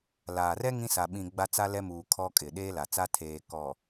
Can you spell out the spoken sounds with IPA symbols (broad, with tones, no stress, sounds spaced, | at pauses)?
l aː˨ r ɛ˦ ŋ ĩ˦ s a˨ ɓ ĩ˨ ɡ͡b a˦ t͡s a˦ l ɛ˦ m uː˨ kʰ ɔ˦ kʼ ɪ˨ ɗ eː˦ l a˨ t͡s a˦ tʰ eː˨ k ɔ˨